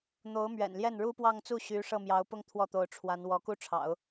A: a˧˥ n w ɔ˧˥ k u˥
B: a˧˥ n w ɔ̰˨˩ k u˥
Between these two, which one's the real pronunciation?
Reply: A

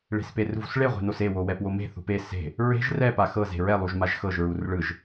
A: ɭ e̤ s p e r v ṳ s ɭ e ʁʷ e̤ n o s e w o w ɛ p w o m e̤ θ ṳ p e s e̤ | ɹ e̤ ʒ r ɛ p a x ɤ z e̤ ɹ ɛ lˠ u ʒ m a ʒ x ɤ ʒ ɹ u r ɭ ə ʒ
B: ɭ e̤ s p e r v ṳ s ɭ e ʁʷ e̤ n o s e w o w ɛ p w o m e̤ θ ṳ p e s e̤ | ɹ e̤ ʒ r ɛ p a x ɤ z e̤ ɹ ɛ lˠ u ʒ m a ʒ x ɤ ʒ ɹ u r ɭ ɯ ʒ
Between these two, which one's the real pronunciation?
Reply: B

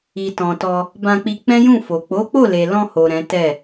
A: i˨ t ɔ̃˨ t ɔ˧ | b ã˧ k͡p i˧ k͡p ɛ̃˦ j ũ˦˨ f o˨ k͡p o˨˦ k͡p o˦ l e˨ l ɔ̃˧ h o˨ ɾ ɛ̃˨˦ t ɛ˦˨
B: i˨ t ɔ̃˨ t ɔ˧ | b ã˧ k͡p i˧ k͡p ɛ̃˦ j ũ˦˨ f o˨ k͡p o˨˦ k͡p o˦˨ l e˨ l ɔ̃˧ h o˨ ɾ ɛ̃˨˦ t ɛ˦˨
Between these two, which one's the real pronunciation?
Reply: B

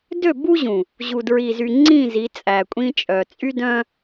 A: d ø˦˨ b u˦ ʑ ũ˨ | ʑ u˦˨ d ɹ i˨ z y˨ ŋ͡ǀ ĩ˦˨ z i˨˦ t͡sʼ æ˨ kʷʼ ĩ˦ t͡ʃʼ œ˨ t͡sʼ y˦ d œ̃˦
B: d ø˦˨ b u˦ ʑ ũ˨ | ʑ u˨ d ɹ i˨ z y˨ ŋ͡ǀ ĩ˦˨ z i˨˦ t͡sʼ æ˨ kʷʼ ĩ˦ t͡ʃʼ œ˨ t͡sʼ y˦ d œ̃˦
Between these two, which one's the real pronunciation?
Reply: B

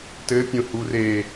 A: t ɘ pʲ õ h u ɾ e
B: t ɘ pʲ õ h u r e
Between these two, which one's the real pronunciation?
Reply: B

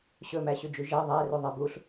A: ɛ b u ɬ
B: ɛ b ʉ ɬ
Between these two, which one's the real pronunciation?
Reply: A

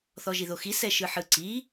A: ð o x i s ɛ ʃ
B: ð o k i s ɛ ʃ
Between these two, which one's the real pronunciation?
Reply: A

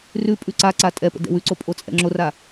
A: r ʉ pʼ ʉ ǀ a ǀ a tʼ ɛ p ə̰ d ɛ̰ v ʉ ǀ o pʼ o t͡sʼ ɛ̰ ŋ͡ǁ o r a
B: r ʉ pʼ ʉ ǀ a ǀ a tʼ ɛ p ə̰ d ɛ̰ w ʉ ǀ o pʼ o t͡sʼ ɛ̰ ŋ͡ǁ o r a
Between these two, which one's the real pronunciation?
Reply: B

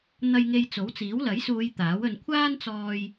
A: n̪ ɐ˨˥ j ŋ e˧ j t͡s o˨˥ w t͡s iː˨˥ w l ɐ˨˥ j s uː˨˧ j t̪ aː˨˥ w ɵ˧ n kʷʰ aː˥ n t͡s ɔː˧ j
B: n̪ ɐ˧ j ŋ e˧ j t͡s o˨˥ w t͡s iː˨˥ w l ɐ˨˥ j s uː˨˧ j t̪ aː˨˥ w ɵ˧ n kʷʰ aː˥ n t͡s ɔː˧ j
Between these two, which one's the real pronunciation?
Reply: B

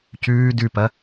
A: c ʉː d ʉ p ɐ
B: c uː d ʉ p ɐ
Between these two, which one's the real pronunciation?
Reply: A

